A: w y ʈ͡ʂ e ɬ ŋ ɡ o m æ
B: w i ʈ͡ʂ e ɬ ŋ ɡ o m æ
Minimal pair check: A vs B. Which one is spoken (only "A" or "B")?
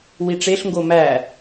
B